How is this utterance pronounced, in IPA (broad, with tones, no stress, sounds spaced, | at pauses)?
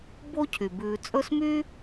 b o˦ cʰ y˩ b ʉː˨ t͡sʼ ɵ˦ s m y˥